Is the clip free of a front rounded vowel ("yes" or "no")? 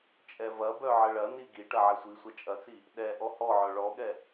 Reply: no